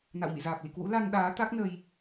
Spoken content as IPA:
n a̰˧˨ w m ḭ˧˨ z aː˨˩ p̚ l ḭ˧˨ k w ṵ˧˥ l a˧ n ɗ aː˨˦ t̪ a˦˥ k̚ n ə˧ j

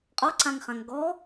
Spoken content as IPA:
qʼ ɔ ǀ ã ŋ χ ã ŋ ɡ ɔ

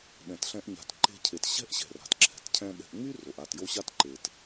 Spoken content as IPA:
ɗ ɛ̃˨ t ɬ ɛ̃˧ ʔ ɲ a̤˨ t ǃ e̤˧ cʰ e˨ t ɕ ɛ̤˦ ʔ ɕ ɛ̤˨ r a̤˨ t ǁʰ ɛ̤˨ t cʰ ɛ̃˧ ɗ ɛ̤˧ ʔ ŋ͡m y˦ r o˨ ʔ a˦˨ t j o˦ ɕ a˦ t ǃ e˨ t

